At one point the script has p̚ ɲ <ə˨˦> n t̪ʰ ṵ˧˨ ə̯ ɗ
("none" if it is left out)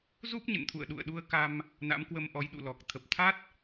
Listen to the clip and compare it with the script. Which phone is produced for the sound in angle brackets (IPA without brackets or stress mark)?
ə̰˧˨